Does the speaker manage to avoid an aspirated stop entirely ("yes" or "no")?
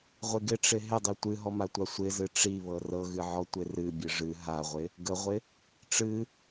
yes